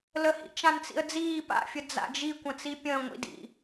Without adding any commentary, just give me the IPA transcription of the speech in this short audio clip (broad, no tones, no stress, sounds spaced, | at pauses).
l ə h ḭ t͡ʃ ã n t͡s ḭ ə̯ d͡z iː p a̰ fʲ ə d͡z a̰ d͡ʒ i kʷ ə̃ t͡s i pʲ ə̃ː ŋʷ ḭ d ḭ